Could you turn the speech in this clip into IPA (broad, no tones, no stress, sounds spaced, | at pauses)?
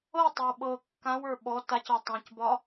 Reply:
ɤ tˤ ɤ w ɓ ɤ kː ã w ə˞ ɓ ɔ t a c ɒ tˤ ã c b ɒ